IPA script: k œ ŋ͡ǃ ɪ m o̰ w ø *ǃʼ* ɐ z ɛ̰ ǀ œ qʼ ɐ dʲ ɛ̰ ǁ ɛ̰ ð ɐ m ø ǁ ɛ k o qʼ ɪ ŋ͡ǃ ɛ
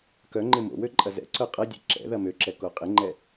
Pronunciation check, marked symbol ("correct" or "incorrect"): correct